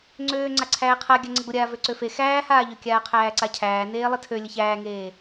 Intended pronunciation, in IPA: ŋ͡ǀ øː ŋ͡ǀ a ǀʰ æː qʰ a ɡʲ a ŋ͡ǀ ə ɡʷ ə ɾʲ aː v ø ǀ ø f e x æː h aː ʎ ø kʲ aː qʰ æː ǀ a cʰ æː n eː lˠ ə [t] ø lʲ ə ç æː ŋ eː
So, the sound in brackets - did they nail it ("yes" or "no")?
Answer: no